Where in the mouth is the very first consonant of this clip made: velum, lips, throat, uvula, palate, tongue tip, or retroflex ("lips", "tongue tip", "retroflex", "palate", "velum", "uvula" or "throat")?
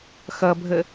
velum